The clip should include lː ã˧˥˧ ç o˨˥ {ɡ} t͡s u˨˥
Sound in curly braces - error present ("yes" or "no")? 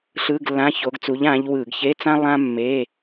no